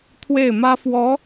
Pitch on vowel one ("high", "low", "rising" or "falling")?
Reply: falling